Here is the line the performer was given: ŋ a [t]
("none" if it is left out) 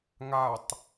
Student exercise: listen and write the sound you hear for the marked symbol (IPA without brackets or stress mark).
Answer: tˤ